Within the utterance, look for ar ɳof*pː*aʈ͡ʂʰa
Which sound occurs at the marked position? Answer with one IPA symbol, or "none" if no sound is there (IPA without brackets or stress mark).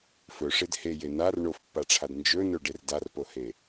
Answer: pː